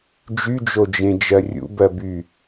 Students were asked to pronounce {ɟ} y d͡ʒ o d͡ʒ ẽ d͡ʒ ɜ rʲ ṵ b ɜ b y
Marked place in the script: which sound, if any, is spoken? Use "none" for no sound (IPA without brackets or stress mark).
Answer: d͡ʒ